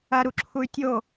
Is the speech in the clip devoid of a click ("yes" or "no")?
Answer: no